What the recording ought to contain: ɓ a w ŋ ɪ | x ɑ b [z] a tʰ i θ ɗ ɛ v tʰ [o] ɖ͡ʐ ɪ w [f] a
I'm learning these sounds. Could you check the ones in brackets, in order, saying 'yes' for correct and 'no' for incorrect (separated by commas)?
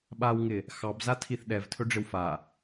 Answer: yes, no, yes